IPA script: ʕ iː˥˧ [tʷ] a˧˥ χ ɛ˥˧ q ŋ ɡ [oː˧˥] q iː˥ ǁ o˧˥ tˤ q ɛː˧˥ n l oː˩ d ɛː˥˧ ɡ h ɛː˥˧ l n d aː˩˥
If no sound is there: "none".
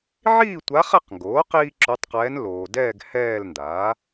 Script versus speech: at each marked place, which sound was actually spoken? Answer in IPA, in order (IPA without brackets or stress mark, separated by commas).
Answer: tʷ, oː˩˥